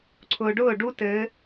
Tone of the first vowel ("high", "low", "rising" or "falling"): low